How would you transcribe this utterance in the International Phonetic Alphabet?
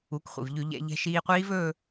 u˩˥ k χʷ ḭ˩ v ʎ ʉ˧˩˧ ʎ ɛ̰˧˩˧ ʎ ɛ̤˧ ʃ iː˧ qʷ iː˦˥ v ɵː˥˧

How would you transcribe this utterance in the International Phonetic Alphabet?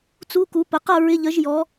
t͡s u˧˥˧ k u˨˥ p ə˩˧˩ q ʌ˥˧ ɹ ɪ˧˥˧ ʎ ə˨˥ ʒ j ɔ˨˥

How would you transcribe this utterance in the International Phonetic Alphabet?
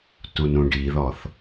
t u n ũ ɖ i ð ɔ θ

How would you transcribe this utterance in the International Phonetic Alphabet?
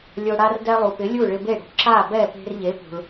lʲ o˧ ɽ a˥ r d ɛ˧ lˠ u˩ p ɪ˩˥ lʲ u˥˩ ɭ ɪ˧ b e˥˩ ɽ ṳ˩˥ ǁ a˥˩ b ɛ˥˩ p e̤˧ r ʎ e˩˥ p ṳ˩ ɭ

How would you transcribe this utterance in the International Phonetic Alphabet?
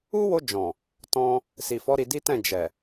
u˦ w o˧ d͡ʒ ɔ̃˨ | t ɔ̃˧ | s i˨ f ɔ˨˦ ɾ i˧ d i˦ t ɛ̃˦˨ d͡ʒ ɛ˨

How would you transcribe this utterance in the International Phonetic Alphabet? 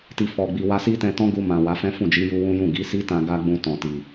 t i˧ f ɔ˧ ɡ͡b i˧ w a˧ s i˦ t ɛ̃˧ t ɔ̃˦ ɡ u˧ m ã˨ w a˨˦ f ɛ̃˦ f ũ˦˨ d͡ʒ i˨˦ j u˧ w ũ˦ j ũ˦˨ ɡ i˨˦ s i˦ t ã˧ ɡ a˦ ɡ͡b ũ˧ t ɔ̃˨ t i˨

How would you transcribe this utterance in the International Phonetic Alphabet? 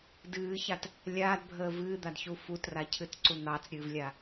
d ɨː ç a t | lʲ aː d bʱ əː v ɨː d̪ a d ç u f u t r a cʰ ɨ t ǀ u n̪ ɑ t͡s ɾʲ ɨː v lʲ a

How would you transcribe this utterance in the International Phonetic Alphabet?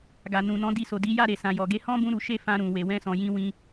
ɡ a˨ n ũ˨ n ɔ̃˨˦ d i˧ s o˨ d i˨˦ j a˦˨ ɾ e˨ s ã˨ j ɔ˨ ɡ e˨˦ h ɔ̃˦ b ũ˦ ɾ u˧ ʃ e˦ f ã˧ ɾ ũ˨ w e˨ w ɛ̃˧ s ɔ̃˨ j ĩ˧ w ĩ˧

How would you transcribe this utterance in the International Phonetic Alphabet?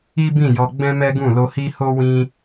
i˦ b ĩ˦˨ j ɔ˧ ɡ͡b ɛ̃˦ m ɛ˦ ɡ ũ˦˨ l o˧ h i˦ h o˦ w ĩ˧

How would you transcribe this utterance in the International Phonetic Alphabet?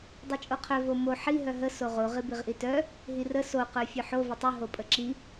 dˤ i t͡ʃʼ o qʰ œ v o m o ħ i ɦ œ ɦ ə s o ʁ o ʁ i b i ʁ ʔ i t œ | ɦ i r ə s o q œ fʲ œ ħ o v ə tˤ ʉ ɦ o pʼ ə ǁ i

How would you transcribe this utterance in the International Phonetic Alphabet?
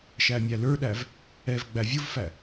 ʃ æ mʲ æ l ə˞ ɗ æ v | ɛ v ɡ͡b æ vʲ ʊ v f æ

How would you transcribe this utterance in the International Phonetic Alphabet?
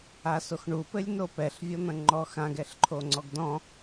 a s o x ɳ u p ɘ lʲ n o p ɛ ɬ vʲ ɔ n̪ ɐ̃ ŋ͡ǃ ɔ x ã ɡ ɛ ɬ ǃʰ o ŋ͡ǀ ɔ ɡ d ɔ̃

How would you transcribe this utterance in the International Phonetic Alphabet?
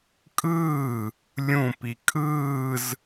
kʼ ɯː | lʲ ũ p i kʼ ɯː z

